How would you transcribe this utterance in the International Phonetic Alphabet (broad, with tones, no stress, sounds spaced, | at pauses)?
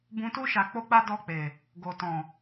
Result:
b ũ˧ t u˦ ʃ a˧ k͡p o˦ k͡p a˦ d ɔ˦˨ k͡p e˨ | ɡ o˨ t ɔ̃˨